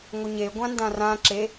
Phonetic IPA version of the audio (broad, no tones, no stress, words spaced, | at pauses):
ŋʷəɲe ɡʷãndãrã ǁe